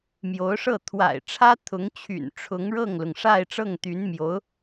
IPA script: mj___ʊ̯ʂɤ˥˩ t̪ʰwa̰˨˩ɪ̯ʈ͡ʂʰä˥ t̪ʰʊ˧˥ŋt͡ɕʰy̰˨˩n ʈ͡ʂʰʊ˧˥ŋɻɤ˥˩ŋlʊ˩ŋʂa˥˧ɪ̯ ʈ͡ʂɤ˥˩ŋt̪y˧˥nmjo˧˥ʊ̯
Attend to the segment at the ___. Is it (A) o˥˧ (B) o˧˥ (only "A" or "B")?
B